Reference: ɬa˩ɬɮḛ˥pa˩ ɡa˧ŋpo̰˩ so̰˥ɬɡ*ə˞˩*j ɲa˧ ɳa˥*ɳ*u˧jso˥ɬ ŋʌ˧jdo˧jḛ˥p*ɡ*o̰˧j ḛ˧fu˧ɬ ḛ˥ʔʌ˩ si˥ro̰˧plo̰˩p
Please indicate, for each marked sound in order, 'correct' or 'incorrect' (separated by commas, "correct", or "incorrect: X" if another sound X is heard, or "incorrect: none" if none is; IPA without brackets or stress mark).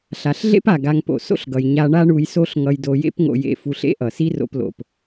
incorrect: ʌ˩, correct, incorrect: ŋ